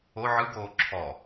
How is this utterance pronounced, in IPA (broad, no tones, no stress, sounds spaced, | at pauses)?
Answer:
o ʕ ɯ ɡ oː ǁʰ ɔ